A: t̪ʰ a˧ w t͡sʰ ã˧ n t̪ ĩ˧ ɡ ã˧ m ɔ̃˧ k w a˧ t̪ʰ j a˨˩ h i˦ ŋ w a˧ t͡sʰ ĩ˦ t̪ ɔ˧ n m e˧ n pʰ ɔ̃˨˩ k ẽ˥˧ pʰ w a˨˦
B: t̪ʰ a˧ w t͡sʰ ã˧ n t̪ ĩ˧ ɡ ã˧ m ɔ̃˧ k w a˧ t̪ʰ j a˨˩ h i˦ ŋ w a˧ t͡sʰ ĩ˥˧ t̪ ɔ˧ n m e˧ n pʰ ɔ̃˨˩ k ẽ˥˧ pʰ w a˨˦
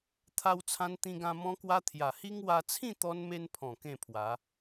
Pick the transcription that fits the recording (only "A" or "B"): B